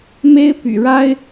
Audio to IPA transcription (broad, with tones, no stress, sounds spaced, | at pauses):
m e˥ ɪ̯ p y̰˨˩ ɻ a˥ ɪ̯